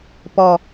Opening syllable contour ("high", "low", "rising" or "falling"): low